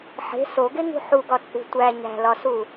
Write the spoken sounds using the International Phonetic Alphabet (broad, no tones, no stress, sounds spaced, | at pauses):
ħ e̤ s o ɡ e ŋ ṳ ħ u ɡ ɒ t͡sʼ ṳ tʷ æ ɲ æ̤ l ɒ s u